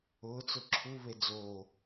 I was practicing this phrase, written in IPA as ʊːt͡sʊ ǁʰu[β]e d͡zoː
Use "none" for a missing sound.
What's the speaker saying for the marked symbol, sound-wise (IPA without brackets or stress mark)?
β